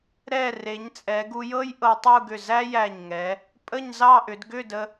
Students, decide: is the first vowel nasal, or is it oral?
oral